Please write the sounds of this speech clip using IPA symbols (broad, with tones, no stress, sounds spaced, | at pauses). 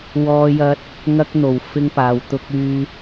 w ɔː˧ j ɐ˧ t̚ | ŋ ɐ˧ k̚ n̪ o˨˩ w f ɪ˧ ŋ p aː˨ w t̪ ʊ˧ k̚ yː˧